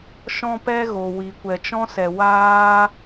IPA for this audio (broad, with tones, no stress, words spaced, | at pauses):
ʃɔ̃˦pɛ˦ ɣo˨wi˨kʷɛ˨ t͡ʃɔ̃˦sɛ˨ waː˦